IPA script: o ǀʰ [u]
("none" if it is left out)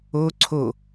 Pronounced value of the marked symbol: o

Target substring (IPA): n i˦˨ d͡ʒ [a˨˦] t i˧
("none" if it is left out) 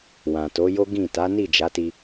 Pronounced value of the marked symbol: a˨˦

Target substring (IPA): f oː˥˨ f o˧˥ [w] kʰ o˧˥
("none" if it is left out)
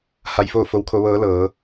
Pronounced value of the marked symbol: w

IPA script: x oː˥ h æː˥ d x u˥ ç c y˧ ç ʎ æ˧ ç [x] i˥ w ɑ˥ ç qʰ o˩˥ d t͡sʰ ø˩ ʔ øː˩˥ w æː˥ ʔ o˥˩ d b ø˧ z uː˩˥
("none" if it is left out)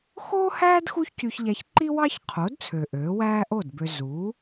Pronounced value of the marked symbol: ǃ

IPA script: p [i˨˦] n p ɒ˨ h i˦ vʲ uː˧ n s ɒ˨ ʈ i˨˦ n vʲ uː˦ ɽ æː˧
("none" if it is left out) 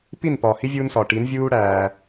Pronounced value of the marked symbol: i˦˨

